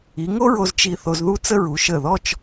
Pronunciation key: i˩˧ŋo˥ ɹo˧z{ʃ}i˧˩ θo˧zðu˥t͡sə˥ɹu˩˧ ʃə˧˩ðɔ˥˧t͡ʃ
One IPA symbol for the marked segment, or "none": t͡ʃ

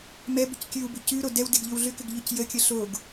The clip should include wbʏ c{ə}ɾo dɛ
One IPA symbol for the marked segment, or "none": ʉ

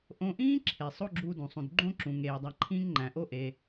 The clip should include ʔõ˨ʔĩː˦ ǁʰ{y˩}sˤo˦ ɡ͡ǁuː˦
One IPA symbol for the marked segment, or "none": e˩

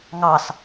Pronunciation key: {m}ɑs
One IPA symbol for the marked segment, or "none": ŋ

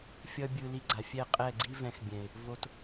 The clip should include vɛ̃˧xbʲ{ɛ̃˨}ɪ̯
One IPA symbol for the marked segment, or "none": ɛ̃˨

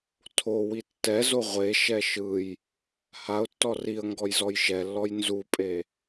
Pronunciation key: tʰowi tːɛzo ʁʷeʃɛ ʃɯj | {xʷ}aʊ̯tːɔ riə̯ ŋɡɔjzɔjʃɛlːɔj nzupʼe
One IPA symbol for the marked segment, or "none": h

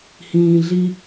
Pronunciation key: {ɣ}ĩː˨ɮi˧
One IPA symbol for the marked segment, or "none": h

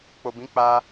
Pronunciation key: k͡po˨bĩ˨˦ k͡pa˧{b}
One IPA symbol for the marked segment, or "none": none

